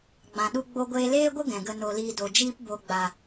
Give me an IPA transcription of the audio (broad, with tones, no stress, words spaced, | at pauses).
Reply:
ɡ͡bã˨ɗu˧ ɡ͡bo˦ ɡʷeː˧leː˦ɡʷə˦ ɡɛ̃˨ɡə˧no˧liː˧ do˨d͡ʒiː˦p bo˨ɡ͡ba˨